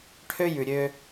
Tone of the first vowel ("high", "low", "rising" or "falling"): high